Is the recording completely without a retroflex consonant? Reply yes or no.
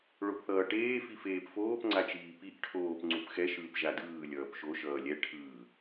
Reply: no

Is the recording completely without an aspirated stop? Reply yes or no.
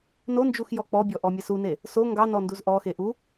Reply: yes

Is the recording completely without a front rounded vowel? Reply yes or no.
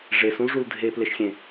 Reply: yes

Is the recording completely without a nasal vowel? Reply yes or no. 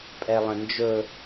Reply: no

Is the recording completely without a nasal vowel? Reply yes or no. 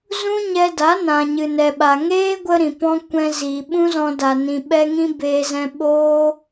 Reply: no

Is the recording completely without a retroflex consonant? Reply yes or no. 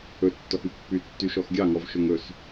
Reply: yes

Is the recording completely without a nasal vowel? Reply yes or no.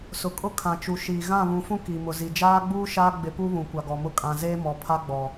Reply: no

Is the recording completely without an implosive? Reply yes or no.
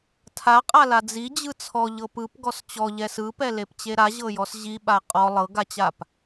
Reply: no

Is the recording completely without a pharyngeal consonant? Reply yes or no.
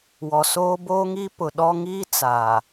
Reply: yes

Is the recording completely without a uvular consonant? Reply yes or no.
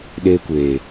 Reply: yes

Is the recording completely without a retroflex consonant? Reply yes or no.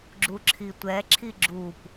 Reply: yes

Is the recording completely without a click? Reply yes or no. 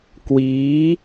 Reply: yes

